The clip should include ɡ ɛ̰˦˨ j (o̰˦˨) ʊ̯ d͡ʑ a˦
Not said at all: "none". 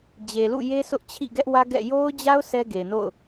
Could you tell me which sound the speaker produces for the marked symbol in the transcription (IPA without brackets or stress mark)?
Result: o˦